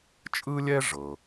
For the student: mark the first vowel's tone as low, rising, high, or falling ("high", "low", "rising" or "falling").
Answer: high